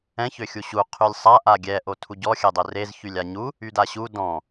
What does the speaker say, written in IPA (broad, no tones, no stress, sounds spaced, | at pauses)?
ɛ̃ ç ø xʲ u ɕ u qʰ y lʲ sˤ a ʔ a ɡʲ ɛ ʔ o tʰ u ɟ ɔ xʲ ɛ dˤ ø r e z ç y lʲ a ɲ u | y d a ɕ u d ɔ̃